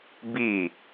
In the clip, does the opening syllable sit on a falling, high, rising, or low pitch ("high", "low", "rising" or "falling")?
falling